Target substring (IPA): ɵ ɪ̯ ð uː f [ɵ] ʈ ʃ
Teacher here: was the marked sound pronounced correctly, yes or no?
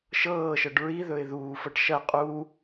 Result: no